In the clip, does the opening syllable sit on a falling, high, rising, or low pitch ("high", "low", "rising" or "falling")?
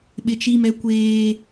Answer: high